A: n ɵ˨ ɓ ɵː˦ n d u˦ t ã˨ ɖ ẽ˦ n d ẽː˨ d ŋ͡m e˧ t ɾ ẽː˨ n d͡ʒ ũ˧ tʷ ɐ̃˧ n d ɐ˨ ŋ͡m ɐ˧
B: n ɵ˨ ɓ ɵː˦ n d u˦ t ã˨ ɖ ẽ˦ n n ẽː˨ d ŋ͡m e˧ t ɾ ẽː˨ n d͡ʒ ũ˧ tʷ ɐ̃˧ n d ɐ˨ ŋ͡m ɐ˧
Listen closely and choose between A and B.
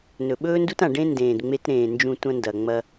A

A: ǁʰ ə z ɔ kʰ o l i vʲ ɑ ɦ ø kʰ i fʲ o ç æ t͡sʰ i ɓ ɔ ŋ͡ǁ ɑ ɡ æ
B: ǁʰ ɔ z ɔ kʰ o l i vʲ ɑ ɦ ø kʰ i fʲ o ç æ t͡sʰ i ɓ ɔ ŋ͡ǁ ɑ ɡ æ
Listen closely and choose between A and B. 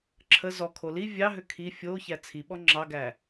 A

